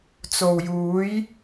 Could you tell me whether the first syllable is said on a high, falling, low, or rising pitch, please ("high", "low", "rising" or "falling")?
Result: low